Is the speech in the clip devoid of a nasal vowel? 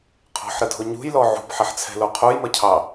yes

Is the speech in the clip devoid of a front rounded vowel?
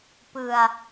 yes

